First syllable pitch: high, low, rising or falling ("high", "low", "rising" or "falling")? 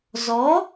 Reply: rising